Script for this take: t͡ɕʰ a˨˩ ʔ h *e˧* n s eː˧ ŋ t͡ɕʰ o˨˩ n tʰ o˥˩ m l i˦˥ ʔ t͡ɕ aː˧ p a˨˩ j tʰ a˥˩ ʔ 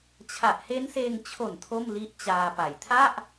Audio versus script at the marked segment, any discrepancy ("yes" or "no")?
yes